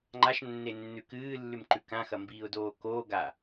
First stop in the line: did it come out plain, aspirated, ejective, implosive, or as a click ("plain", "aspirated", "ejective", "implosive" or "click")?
click